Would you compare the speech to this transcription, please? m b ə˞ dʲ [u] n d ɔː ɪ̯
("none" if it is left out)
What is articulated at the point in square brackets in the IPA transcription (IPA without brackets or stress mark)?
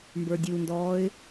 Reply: u